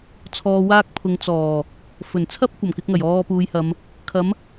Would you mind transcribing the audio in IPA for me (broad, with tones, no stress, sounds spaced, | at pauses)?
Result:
t͡sʰ ɔː˧ w aː˥ k̚ pʰ ʊ˨˧ ŋ t͡s ɔː˨˩ | f ɵ˨˩ n t͡sʰ ɐ˥ p̚ kʷ ɐ˨˩ m k ɪ˧ k̚ ŋ ɐ˨˩ j ɔː˧ p uː˨˧ j h ɐ˨˧ m | kʰ ɐ˨˥ m